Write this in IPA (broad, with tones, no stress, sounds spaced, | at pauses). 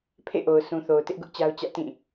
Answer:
pʰ ḛ˦˨ ʔ o˨ ʊ̯ sʰ ũ˨ θ o˨ ʊ̯ t ɪ˦ ʔ ɡ ʊ˦ ʔ t͡ɕ a˦ ʊ̯ t͡ɕ ä̰˦˨ t ĩ˦˨